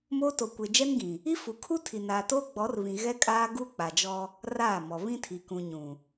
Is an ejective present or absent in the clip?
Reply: present